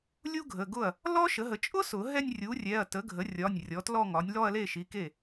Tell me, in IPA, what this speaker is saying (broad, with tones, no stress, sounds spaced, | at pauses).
lʲ u˥ ɡʱ ə˩˧˩ ɡ ʊ˥˩ ɐ̯ | l ɔ˥ ʃ ə˩˥ ɦ ə˩˥ t͡ʃʼ ʊ˥ s ʊ˨˩˦ ɦ ɛ˥˧ nʲ rʲ u˩˥ rʲ ɛ˩˧˩ ɐ̯ t ə˩˥ ɡʱ ə˩˥ rʲ ɒ˩˧˩ nʲ rʲ ɔ˩˥ t l ɔ˥˧ ŋ ɒ˩˥ nʲ l ɔ˥˧ ɐ̯ l e˥˩ ʃ i˩˧˩ k e˥˩